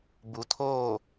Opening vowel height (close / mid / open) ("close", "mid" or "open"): close